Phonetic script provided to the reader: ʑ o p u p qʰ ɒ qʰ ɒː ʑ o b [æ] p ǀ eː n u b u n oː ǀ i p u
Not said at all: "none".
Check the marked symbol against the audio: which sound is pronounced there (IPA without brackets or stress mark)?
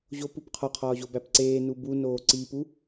æ